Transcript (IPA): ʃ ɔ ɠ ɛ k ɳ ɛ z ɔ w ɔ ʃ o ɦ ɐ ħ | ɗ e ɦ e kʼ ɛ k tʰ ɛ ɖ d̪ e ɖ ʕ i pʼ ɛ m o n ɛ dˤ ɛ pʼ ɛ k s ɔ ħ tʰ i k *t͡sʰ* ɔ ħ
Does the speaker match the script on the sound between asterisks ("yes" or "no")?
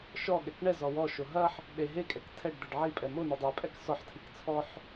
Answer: yes